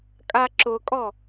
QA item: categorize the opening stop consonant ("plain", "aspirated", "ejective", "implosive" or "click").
ejective